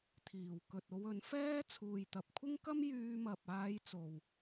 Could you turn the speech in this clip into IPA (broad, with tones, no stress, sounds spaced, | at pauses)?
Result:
t̪ʰ iː˨˩ w k ɵ˨ t̚ o˧ w ɵ˨˥ n f ɛː˥ t͡sʰ uː˨ j t̪ ɐ˨˥ p̚ kʷʰ ɪ˥ ŋ k ɐ˥ m j yː˧ m ɐ˨ p̚ aː˧ j t͡s o˨ w